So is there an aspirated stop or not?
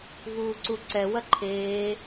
yes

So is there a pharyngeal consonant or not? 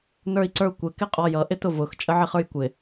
yes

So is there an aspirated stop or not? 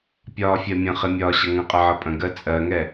no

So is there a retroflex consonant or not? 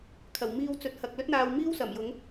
no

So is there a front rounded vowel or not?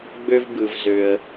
yes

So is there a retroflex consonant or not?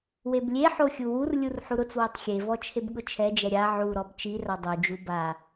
no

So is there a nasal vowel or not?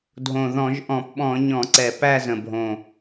yes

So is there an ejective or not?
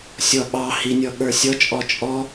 yes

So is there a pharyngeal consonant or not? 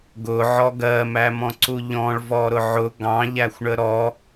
yes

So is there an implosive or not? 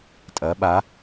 yes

